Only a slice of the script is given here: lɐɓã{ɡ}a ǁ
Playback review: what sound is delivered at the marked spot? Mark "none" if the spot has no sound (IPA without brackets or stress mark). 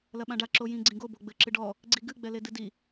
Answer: ɖ